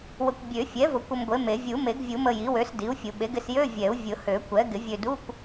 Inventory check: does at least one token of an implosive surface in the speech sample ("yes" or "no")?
yes